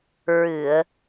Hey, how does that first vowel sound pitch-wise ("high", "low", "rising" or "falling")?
low